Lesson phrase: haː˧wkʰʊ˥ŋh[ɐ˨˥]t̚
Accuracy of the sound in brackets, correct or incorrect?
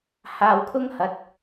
correct